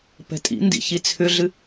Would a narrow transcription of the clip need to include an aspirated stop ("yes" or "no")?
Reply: yes